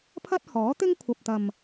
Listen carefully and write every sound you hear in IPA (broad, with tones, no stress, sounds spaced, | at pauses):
pʰ ɐ˥ t̚ h ɔː˨˥ t̪ ɪ˥ ŋ kʷʰ ɐ˨ p̚ t̪ ɐ˨ m